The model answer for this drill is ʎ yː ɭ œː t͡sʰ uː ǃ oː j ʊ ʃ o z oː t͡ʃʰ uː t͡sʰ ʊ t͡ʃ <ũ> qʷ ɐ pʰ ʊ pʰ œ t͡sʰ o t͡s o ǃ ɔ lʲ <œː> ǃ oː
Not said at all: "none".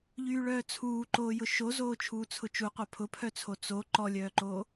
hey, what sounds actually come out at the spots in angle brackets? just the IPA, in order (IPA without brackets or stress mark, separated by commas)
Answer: u, œː